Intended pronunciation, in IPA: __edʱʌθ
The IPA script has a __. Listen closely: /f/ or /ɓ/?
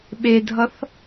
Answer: ɓ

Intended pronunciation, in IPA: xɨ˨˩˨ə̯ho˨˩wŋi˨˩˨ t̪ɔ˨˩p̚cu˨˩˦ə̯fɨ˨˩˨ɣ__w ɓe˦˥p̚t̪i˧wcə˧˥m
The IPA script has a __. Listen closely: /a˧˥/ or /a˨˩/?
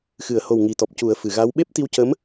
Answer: a˧˥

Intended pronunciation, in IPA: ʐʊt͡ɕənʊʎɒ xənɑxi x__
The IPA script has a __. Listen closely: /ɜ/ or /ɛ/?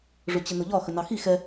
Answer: ɛ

